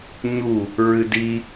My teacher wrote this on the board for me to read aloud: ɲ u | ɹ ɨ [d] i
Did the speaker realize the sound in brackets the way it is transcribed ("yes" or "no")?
yes